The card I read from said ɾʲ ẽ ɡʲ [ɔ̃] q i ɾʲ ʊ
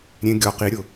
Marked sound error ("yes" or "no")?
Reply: yes